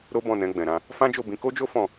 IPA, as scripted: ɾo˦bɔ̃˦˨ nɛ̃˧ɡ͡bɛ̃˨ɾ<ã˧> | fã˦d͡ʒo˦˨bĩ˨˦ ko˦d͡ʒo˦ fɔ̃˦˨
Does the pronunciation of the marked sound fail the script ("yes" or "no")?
no